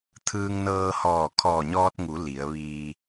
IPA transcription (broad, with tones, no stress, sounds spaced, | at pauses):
t̪ʰ ɯː˧ ŋ n ɤː˧ h ɔː˧˩ kʰ ɔː˧˩ ɲ ɔː˧ t̚ ŋ u˩˧ l i˩˧ ə̯ ʋ iː˧